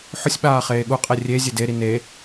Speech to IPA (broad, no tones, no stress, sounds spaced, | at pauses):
ħ ʊ sʲ ɓ aː χ eː ɠ u qʼ e rʲ e zʲ e d e ɾ i n e